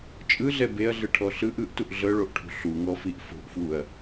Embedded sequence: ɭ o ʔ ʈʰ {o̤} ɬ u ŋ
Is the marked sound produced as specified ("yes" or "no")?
no